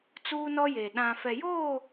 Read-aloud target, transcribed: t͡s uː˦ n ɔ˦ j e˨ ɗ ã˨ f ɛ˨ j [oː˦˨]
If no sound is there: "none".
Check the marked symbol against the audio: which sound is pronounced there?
oː˦˨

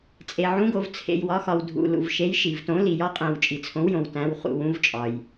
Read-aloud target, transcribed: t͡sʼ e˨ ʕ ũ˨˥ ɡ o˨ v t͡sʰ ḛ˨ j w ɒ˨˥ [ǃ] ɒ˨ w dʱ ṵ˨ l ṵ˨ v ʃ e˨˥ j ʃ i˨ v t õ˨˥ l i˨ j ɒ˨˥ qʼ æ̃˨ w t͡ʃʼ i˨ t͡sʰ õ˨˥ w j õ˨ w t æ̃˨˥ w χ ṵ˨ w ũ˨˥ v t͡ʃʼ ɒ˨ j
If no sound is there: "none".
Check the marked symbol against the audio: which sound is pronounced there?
x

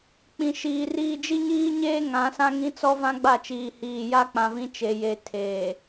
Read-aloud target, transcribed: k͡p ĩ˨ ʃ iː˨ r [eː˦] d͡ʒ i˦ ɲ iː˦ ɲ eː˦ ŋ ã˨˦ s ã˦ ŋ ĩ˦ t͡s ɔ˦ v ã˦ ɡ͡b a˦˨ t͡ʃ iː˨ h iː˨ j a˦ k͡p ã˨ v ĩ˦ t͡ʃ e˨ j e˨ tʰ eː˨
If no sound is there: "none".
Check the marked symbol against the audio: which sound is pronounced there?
iː˦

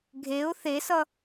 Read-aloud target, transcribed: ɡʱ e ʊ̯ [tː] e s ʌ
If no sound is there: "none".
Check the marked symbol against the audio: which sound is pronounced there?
θ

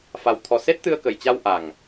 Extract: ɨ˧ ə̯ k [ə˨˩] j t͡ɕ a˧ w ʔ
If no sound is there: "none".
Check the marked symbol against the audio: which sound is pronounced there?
ə˨˩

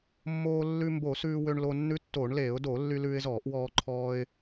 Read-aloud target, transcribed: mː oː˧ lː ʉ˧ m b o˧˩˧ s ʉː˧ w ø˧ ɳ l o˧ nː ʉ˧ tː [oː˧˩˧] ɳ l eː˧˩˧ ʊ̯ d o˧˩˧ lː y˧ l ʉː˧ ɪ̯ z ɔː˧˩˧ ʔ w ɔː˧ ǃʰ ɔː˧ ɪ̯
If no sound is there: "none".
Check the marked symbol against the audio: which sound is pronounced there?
oː˧˩˧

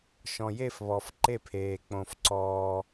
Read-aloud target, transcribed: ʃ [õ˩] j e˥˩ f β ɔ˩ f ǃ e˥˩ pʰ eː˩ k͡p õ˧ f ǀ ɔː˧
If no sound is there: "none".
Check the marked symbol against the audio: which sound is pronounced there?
ɔ̃˩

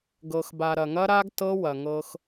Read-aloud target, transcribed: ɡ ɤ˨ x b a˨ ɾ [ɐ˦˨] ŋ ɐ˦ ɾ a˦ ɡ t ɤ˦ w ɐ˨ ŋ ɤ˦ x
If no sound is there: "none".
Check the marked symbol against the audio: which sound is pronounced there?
ɐ˨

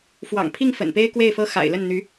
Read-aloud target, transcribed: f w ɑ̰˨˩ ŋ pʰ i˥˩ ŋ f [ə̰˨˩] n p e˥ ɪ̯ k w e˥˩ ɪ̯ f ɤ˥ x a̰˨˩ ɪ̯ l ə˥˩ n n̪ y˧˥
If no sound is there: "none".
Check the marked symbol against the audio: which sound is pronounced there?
ə̰˨˩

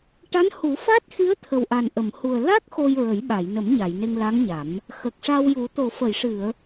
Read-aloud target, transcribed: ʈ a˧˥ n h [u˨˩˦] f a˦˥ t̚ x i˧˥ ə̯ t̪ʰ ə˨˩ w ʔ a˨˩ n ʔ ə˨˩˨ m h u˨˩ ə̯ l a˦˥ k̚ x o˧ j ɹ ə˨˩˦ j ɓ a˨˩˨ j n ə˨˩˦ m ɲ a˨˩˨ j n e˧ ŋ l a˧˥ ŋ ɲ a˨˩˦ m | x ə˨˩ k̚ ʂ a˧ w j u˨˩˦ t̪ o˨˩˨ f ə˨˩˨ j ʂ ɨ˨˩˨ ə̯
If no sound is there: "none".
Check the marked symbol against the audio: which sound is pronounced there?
u˨˩˦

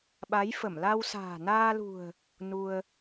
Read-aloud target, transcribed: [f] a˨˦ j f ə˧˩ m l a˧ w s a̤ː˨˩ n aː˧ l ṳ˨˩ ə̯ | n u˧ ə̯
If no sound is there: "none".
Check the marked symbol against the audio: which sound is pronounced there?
ɓ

